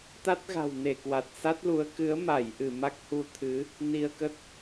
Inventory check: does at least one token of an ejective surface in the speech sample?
no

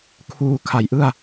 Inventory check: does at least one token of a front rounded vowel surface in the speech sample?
no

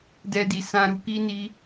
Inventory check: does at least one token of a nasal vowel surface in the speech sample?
yes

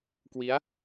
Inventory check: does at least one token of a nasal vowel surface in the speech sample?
no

